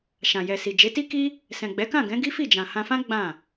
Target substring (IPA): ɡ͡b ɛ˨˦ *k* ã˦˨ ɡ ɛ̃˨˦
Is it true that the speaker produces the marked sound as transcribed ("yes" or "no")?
yes